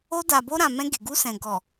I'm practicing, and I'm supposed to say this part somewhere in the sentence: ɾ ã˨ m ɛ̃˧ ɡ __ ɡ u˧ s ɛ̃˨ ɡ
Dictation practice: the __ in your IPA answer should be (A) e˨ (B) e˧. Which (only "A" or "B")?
A